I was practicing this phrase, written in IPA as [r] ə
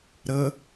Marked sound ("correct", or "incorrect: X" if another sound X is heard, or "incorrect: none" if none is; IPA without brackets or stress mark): incorrect: ɾ